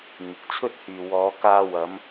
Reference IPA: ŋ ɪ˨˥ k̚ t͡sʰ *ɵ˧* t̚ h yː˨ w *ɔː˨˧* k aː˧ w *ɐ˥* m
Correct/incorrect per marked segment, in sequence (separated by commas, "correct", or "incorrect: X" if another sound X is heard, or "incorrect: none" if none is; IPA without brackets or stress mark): incorrect: ɵ˥, correct, incorrect: ɐ˨˧